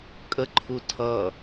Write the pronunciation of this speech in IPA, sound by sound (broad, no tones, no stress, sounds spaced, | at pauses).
kʼ ə ǃʰ u tʰ ʌ